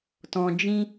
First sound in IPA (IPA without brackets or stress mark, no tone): t